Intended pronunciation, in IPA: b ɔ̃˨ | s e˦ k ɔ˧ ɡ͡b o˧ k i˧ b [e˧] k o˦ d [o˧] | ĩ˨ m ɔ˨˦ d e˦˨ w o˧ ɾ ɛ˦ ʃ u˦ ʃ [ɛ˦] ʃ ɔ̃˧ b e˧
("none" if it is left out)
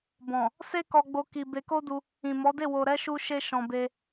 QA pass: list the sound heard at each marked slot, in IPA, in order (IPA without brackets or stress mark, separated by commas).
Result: e˧, u˧, e˦